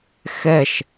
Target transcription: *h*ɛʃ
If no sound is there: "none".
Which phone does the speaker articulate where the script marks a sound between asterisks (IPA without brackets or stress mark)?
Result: x